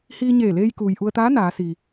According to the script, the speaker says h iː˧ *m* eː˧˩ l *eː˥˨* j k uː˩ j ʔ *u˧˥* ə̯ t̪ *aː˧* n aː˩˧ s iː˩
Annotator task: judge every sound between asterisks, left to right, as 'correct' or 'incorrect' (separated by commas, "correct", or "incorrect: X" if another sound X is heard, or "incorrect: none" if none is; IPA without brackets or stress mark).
incorrect: ɲ, incorrect: eː˧, incorrect: u˧, incorrect: aː˧˥